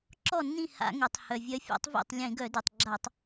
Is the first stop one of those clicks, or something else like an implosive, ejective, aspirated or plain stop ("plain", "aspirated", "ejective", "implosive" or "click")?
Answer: click